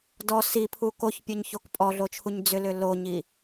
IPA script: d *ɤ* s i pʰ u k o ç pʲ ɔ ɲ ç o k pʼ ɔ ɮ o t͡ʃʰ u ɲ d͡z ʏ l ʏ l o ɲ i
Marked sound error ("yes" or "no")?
yes